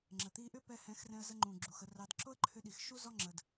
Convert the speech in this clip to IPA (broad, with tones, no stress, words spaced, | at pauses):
ŋ͡ǁə˨ t̪i˧ʔʏ˦pɛ˧ hɛ̃˨˦xrɛ̃˧ə̯zə˧ ŋ͡ǃũ˨ ɡ͡ǁu˨xə˧rɑ˧d ǁo˦ə̯ǃʰʏ˧ɗi˨x ʃu˦zɔ˦ ŋ͡ǁə˧d